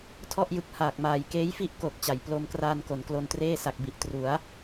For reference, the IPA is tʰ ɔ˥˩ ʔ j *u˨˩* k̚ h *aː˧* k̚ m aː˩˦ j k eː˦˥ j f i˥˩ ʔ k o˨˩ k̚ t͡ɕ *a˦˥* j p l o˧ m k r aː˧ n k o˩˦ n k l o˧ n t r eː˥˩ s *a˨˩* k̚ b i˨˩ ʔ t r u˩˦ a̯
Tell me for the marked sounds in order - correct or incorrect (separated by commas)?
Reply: incorrect, incorrect, incorrect, correct